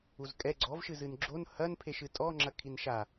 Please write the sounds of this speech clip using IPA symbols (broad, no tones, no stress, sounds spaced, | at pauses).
u z kʼ ɛ ɡ͡ǀ ɔ v ʃ ɨ z ɨ n ɡ͡ǁ o n h ɐ n pʰ e ʃ ɨ tʼ ɔ ŋ͡ǁ ɐ kʰ i n ʃ a